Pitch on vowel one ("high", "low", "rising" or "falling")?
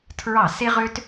falling